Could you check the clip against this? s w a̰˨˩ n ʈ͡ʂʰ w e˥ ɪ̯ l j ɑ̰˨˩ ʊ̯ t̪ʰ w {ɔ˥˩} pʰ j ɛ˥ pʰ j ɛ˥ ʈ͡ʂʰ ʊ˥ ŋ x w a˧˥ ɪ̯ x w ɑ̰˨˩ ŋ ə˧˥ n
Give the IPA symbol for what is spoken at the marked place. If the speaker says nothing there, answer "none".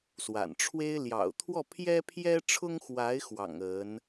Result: ɔ˥˩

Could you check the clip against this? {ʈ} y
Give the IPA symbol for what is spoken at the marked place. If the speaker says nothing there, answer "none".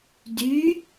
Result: d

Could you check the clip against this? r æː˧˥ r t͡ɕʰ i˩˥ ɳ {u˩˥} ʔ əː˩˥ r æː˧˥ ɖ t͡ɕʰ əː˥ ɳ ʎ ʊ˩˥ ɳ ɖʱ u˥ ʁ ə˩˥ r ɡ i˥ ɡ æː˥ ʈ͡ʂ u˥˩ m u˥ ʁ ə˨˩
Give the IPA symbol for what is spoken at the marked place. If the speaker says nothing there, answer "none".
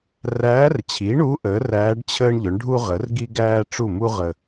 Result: u˧˥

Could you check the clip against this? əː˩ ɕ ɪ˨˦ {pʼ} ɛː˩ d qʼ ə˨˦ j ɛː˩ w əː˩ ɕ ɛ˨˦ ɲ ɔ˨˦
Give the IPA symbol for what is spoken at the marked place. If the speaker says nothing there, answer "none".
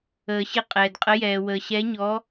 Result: qʼ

